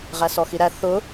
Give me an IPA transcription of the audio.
ʁ æ s ɔ x i ɾ æ θ ʊ

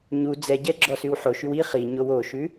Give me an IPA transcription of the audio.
ɲ u d͡z ɛ ɟ ɛ ɡ͡ǁ ɔ s ʉ w ħ o ʃ y w i χ i ɲ o w o ʃ ʉ

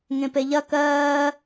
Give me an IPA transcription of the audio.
ŋ ẽ p e ʎ ɐ k ɜː

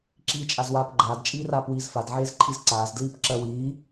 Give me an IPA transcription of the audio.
ǁ iː t͡ʃʼ a z w aː p ɡ͡ǃ aː d t͡ʃʼ iː r aː p w iː z f a d ʕ eː z ǃʰ i z ǀ aː z d l iː p ǁ ɜ w iː

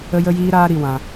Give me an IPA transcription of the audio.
ə˦ j ə˦ j iː˦ ɾ aː˦ ɾ i˦ w ã˦

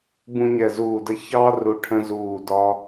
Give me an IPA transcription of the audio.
b ũ˦ ɲ ɛ˧˩ z uː˧˩ d ə˦ ç ɑ˦ r u˧˩ ʈʰ ə̃˦ z uː˧˩ d ɒ˦

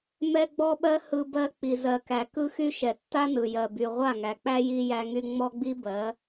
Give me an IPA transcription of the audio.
m ɛ˦ ɡ͡b ɔ˦ ɓ ɜ˦ h ɯ˦ b ɜ˦ k͡p i˨ z ɜ˨ k æ˨ k ɯ˦ x y˦ ʃ ɛ˨ tː a˦ n ɯ˨ j ɜ˨ b y˨ ʁʷ a˦˨ ŋ æ˨ k͡p æ˦ j i˦ j æ˦ ŋ y˦ ŋ͡m ɔ˦ ɡ͡b i˦ b ɜ˨˦

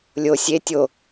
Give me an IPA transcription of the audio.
lʲ o sʲ e tʲ o

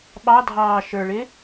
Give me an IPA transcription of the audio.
ɓ ɑ dʱ ɑː ʃ ə˞ ɭ ɪ

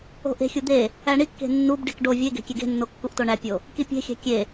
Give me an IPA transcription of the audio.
o̤ ʔ e̤ xʲ u d̪ e | æ ɳ i kː e̤ nː u b ɖ i k ɖ o vʲ e ɡ e̤ kʲ e ɡ e̤ nː o kː u ʔ t o ɳ æ pʲ o | k i pʲ e̤ xʲ æ̤ kʲ e

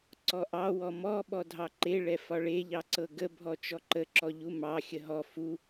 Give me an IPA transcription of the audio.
ǀ ɔ ʔ ɑ w ɔ m ɔ ɓ ɔ dʱ ɑ ǃ e ɭ ɛ f ɒ ɭ e ʎ ɑ ǀ ɤ ɡ ə bʱ ɔ t͡ʃ ɔ ǃ ə ǁ ɔ ʎ u m ɑ xʲ ə ɦ ɔ f u

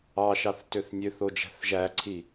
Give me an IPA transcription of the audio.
ɑ ʃ ɑ θ t ø θ nʲ ø θ o d͡ʒ æ̤ θ ʒ æ ǀʰ i

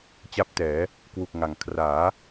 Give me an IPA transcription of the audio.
t͡ɕ a˦˥ p̚ t ɛː˩˦ | k w u˨˩ k̚ ŋ a˨˩ ŋ kʰ r aː˩˦

